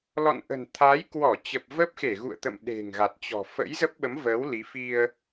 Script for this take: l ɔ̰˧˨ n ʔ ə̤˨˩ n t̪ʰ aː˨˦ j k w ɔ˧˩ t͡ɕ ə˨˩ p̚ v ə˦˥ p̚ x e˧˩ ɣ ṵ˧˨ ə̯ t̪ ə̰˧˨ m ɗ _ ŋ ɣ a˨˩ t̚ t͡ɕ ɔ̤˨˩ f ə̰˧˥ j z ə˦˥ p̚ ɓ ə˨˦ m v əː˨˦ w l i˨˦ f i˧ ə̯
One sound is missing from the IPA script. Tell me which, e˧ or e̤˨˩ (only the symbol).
e̤˨˩